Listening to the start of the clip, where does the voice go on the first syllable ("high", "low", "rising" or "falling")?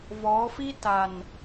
rising